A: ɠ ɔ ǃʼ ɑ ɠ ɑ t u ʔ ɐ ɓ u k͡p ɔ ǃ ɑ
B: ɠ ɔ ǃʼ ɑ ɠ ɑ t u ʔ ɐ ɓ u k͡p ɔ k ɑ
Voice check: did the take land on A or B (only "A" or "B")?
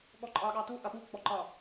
A